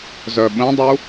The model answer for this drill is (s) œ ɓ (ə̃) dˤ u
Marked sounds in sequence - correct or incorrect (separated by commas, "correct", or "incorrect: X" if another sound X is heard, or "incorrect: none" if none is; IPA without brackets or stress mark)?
incorrect: z, correct